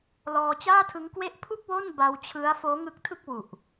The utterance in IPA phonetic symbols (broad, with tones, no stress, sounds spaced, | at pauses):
l ɔː˧ t͡ɕ aː˥˩ tʰ ɯ˦˥ ŋ k w e˥˩ ʔ pʰ u˥˩ k̚ w o˥˩ n b a˧ w t͡ɕʰ ɯ˦˥ a̯ f oː˦˥ ŋ ɯ˦˥ k̚ tʰ ɯ˥˩ k̚ w u˨˩ ʔ